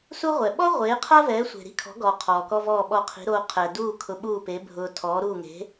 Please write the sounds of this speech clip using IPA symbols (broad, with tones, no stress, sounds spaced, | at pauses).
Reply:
s u˥ ʁʷ ɛ˩ ɓ ɔ˥ ʁʷ eː˩˥ qʰ a˥ v ɛː˩˥ sʷ e̤˩ ɾ i̤˥ kʰ ɔ̤˩˥ ɡ ɔː˩ qʰ ɔː˩ k ɔ˥ v ɔː˥˩ ɓ ɔ˥˩ qʰ i̤˩˥ ɾ oː˧ qʰ ɛ˩ d uː˥˩ kʰ ʊ˧ ɓ uː˥˩ p e˩˥ bʱ ʊː˧ tʰ ɔː˩˥ ɾ uː˥˩ ŋ e̤˩˥